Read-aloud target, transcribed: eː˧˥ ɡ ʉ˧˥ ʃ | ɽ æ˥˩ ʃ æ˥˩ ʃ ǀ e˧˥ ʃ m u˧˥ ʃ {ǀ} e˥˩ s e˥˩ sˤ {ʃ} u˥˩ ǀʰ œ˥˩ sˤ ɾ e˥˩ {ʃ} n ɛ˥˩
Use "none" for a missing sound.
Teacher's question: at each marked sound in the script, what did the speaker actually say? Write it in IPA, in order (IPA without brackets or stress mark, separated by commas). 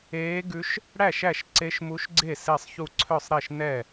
ɡ͡ǀ, ç, ʃ